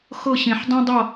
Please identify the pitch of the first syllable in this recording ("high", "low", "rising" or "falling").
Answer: falling